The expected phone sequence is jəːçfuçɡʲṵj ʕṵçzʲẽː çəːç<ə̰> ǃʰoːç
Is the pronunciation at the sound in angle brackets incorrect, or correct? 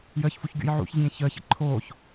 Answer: correct